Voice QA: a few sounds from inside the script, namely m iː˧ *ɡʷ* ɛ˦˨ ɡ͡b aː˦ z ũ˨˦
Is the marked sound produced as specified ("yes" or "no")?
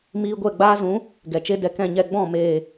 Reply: yes